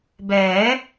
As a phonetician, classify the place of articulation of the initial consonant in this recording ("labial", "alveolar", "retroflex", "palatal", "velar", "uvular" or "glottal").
labial